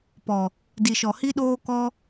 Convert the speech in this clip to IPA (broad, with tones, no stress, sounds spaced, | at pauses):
p ɔ˨ | d i˨ ʃ ɔ˨ h i˦ ɗ oː˦ k ɔ˦